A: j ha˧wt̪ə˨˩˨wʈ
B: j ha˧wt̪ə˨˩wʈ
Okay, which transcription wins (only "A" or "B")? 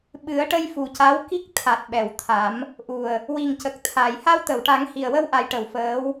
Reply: A